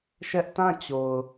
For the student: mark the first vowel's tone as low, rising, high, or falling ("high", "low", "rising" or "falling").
high